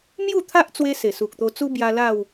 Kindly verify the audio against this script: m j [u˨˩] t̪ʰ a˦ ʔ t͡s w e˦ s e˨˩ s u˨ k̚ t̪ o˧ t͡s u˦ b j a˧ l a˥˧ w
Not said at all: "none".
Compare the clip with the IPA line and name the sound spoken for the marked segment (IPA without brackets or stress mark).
u˥˧